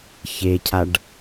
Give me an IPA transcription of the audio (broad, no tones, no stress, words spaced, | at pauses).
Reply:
çecʰaɖ